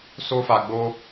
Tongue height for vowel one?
mid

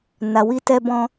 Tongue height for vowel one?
low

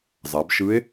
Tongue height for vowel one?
low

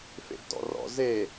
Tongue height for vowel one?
mid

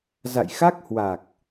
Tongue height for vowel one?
low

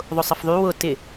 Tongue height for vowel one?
high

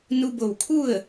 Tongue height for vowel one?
high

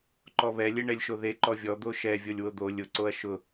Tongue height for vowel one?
mid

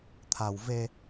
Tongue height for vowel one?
low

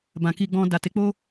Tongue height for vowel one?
low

